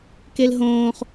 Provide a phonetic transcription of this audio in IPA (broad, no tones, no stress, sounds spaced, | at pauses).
k e l ɦ õː χ